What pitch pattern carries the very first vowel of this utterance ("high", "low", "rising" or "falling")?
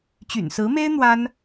low